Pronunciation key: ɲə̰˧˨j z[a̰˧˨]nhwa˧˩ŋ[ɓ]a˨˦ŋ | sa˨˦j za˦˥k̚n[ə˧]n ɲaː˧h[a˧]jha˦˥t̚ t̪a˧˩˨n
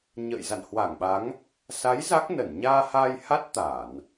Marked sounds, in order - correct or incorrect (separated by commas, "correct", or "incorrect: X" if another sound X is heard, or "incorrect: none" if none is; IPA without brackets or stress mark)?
correct, correct, incorrect: ə˧˩, correct